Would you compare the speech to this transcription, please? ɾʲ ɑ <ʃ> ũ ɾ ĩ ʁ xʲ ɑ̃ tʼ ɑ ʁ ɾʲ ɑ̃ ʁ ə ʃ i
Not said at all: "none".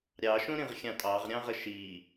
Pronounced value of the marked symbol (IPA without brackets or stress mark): ʃ